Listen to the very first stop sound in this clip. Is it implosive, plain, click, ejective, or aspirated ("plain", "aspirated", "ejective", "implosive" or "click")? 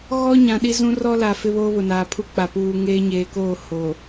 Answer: implosive